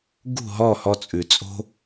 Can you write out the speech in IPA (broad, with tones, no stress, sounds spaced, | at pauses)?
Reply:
ɡ ṳ˥˩ ɦ ɔ˥˩ h ɔ˧ t͡sʼ ʉ˩ t͡sʼ o̤˥